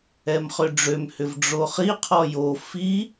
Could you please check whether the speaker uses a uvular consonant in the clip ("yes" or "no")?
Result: yes